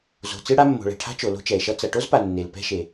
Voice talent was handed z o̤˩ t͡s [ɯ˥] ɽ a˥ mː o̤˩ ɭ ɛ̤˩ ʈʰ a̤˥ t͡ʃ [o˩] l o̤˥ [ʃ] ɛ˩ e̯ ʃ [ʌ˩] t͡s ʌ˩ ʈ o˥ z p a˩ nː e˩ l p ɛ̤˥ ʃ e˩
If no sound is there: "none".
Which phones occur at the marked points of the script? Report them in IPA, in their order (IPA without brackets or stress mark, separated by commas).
ɯ˥, o˩, t͡ʃ, ʌ˥